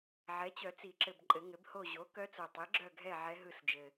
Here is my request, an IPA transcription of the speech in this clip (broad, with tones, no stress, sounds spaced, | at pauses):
ʕ ɛ˩˥ t͡ɕ œ˨˩˦ t͡s i˨˩˦ ǁ ɘ˨ b ǃʼ ɘ˨˩˦ ŋ ɘ˩˥ b h o˦˨ ʑ o˩˥ k œ˧˥ t͡s o˨ tˤ i˩˥ ɡ͡ǁ œ˦˨ ɡʱ ɛ˦˨ ʕ ɛ˧˥ ɦ ɯ˦˨ s d͡ʒ ɘ˨